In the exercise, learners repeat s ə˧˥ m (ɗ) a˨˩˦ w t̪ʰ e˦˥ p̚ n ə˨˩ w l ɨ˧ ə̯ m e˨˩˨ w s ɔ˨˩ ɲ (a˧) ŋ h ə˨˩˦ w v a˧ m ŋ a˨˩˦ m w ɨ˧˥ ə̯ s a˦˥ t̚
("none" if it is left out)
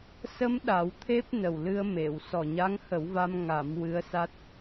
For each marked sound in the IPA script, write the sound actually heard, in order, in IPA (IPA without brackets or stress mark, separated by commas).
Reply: ɗ, a˧˥